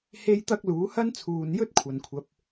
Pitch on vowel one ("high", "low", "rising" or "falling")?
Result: high